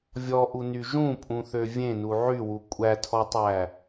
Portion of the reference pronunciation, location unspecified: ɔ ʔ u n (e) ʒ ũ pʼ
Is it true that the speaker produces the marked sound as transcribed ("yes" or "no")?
no